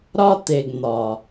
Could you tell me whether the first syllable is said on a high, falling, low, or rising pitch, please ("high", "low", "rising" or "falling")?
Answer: high